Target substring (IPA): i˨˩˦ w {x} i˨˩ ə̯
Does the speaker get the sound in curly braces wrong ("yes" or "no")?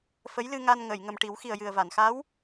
no